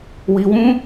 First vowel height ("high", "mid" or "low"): high